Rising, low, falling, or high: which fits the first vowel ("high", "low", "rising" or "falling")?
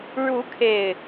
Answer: rising